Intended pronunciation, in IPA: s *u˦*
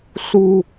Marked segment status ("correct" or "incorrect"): incorrect